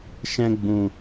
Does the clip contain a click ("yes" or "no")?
no